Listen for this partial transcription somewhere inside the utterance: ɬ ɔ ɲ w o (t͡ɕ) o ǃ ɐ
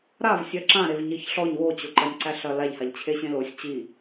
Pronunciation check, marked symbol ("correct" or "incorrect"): correct